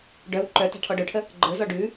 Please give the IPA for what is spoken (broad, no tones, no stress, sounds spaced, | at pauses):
ɖ œ w ǃ œ t a̤ ʈʰ ɔ ɖ œ ʈʰ ə | ɡ͡ǃ ə˞ z ɔ ɖ ʉ